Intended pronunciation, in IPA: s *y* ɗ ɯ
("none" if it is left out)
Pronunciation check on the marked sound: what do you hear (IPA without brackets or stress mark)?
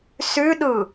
y